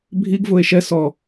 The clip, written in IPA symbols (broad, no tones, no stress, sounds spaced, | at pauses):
bʱ i ɡ v ʊ e̯ ʃ ɛ s ɔ